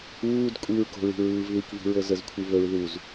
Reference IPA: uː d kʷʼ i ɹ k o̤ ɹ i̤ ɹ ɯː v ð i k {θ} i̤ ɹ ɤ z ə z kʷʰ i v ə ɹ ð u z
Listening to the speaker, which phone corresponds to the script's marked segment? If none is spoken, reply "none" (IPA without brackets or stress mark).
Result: v